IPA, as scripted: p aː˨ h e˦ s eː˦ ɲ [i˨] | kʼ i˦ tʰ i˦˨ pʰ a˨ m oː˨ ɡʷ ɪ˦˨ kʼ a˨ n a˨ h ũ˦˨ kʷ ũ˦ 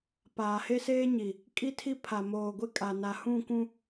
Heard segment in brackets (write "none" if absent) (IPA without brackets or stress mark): i˨